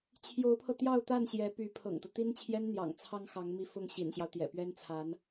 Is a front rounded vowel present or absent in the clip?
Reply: present